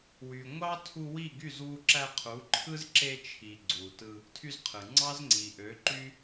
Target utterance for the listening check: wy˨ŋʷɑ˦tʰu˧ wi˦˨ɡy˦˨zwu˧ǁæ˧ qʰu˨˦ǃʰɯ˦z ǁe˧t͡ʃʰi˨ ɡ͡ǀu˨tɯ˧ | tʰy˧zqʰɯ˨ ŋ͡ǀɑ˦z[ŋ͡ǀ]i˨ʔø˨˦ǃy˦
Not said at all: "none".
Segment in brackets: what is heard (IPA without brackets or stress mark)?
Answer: ŋ͡ǀ